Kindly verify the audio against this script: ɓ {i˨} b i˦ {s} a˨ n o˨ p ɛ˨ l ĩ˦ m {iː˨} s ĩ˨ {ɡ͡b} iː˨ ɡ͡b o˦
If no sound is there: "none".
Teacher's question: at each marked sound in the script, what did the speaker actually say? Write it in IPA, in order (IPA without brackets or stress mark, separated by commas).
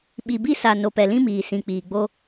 i˨, s, iː˨, k͡p